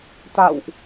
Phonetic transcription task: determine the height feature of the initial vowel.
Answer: low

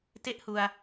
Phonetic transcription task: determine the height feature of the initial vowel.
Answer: mid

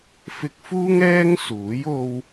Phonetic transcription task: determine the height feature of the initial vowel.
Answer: high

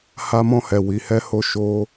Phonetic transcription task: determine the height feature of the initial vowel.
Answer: low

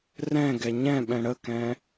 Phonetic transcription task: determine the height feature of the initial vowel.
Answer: mid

